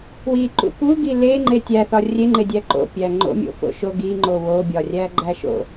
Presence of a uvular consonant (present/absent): absent